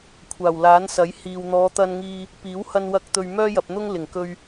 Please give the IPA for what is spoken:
kʷʰ aː˨˩ w l aː˨˥ n s ɐ˨˥ j h iː˨ w n̪ ɔː˨˧ t̪ ɐ˧ n ŋ iː˧ | p iː˨˥ w h ɐ˧ n w ɐ˧ k̚ t̪ ɵ˨ ɥ m œː˥ j ɐ˨ p̚ n̪ ʊ˥ ŋ l ɪ˨˩ ŋ k ɵ˧ ɥ

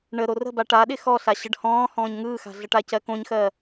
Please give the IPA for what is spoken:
ɳ ə ɾ o r ə̤ b a ʈ a ɗ ɪ x ɔ ɬ a ɕ ə ɖ h ɔ̃ː h ɔ̃ː ɲ ŋ ɯː x a̤ ɮ ə ʈ a c ɜ k õ ɲ x ɜ

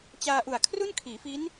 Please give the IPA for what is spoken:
t͡ɕ aː˧ ʔ u˨˩ a̯ kʰ r u˥˩ n kʰ iː˩˦ f i˦˥ n

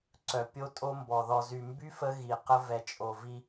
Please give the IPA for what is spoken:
ǀ œ˨ pʲ o˦ tʼ o˦ m b ɔ˨ ð ɔ˨ z y˨ m b y˦ f ə˦ ɣ i˨ q ə˦ v ɛ˨ t͡ʃʼ o˨ v i˦

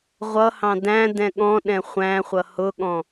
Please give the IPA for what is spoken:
ʁʷ ʌ h ɑ̃ d æ̃ d ɛ̃ ɠ ɔ̃ ɗ ɛ̃ χʷ æ̃ χʷ ʌ h ʊ ɠ ɔ̃

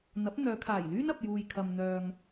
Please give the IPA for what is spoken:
n̪ ɐ˨˥ p̚ n̪ œː˨˧ kʰ aː˨˩ j l yː˥ n ɐ˧ p̚ j uː˧ j kʰ ɐ˧ m n̪ œː˧ ŋ

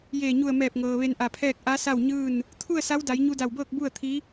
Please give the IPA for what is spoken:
j eː˧˩ ɲ u˧˩ ə̯ m ɛː˧˩ p̚ ŋ ɤː˩ ʋ e˧ n ʔ a˧˩ pʰ ɛː˥˨ k̚ ʔ a˧˥ s a˥˨ w ɲ ɯː˥˨ n | t̪ʰ u˥˨ ə̯ s a˧˥ w d a˩˧ j ɲ u˧ d a˧˩ w b ɤː˥˨ k̚ b u˥˨ ə̯ t̪ʰ i˧˥

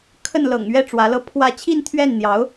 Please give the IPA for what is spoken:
kʰ ə˥˩ n l ɤ̰˨˩ ŋ ɥ ɛ˥ ʈ͡ʂ w ä˧˥ l ɤ˥ pʰ w ä˥˧ t͡ɕʰ i˥˧ n t̪ʰ ɥ ɛ˥˩ n n̪ j ɑ˧˥ ʊ̯

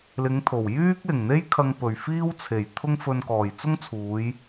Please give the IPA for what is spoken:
l ɪ˨˧ ŋ t̪ʰ o˨˩ w j yː˥ k̚ l ɪ˨˩ ŋ n̪ e˥ j kʰ ɐ˧ ŋ p ɵ˨˩ ɥ f iː˥ w t͡sʰ e˨˩ j t̪ʰ ʊ˥ ŋ f ɵ˧ n k ɔː˨˩ j t͡s ʊ˥ ŋ t͡sʰ uː˨˧ j

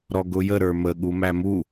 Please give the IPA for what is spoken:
ɾ ɔ ɡ ʊ j ə ɾ ə˞ m ə ɠ u m æ m u

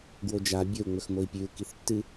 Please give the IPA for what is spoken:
ɡ w o d͡ʒ a bʲ ɵ u̯ ŋ͡m ɵ x m o i̯ pʲ ʉ u̯ k i θ tː ɨ

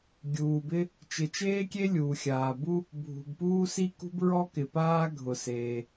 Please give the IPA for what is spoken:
ɡʲ uː˩ b ɪ˥ | t͡ʃ ɪ˩ t͡ʃ eː˥ kʲ e˥ lʲ uː˩ xʲ aː˩ b u˥ | bʱ ṳ˩ b p uː˥ s i˥ k ṳ˥ b ɹ ɔ˥ k ɪ˩ p aː˥ ɡʱ ʊ˩ s eː˩

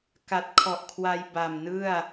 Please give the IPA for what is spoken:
k a˨˩ t̚ kʰ ɔ˨˩ ʔ kʰ w a˧ j b a˨˩ m n ɯ˥˩ a̯

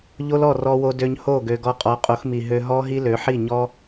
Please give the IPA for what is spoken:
ʎ o˦ l ɔ˦˨ r ɔ˧ w o˧ d ø˧ ɲ h o˦˨ ɡ ø˨ ɡ ɔ˧ qʼ ɔ˨˦ qʼ o˨˦ x m i˨ ɦ ø˧ ɦ ɔ˦ ɦ i˦ l ø˨˦ ħ i˦˨ ɲ ɔ˦

